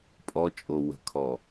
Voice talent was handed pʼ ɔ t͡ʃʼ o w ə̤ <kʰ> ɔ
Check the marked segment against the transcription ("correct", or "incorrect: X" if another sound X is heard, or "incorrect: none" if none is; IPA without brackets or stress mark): correct